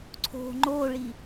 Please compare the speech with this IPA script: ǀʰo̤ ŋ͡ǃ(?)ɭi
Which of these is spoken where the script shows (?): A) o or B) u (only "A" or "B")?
A